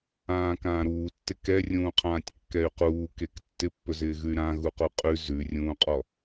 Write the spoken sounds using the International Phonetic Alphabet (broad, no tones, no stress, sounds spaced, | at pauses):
ãː k ãː ɾ uː tː ɪ k ɛ rʲ ũː qʰ ãː tʲ kː ɛ y̯ q uː k e k tː ɪ pː ɵ z ɪː ɣ ʉ y̯ ɾ ã ɣ u q u qʼ ʉ z ʉ rʲ ũː qʼ ɔ